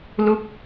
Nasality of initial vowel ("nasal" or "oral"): oral